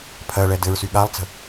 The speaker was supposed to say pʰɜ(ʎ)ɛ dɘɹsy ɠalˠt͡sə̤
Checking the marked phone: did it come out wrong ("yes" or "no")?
yes